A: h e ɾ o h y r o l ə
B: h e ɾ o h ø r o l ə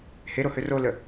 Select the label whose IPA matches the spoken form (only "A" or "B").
B